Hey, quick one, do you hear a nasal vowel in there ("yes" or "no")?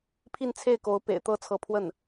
no